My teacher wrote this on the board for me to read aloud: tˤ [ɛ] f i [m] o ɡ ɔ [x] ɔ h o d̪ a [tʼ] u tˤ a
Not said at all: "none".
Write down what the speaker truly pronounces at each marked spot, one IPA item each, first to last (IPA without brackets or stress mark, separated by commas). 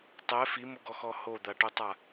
ɛ, m, x, ʈ